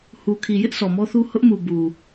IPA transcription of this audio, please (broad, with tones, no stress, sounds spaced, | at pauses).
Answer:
h u˨ kʰ i˨ j ɪ˦ ʔ s ɔ˨ m ɔ˦ θ u˦ h ʊ˦ ʔ m u˨ b u˨